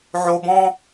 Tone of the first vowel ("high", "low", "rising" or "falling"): low